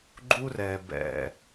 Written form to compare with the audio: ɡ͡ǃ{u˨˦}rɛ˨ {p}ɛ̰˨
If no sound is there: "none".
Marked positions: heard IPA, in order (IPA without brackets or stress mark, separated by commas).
u˦, b